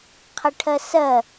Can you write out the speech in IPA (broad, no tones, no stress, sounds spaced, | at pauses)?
qʰ ə ʈʰ ɜ s ɜ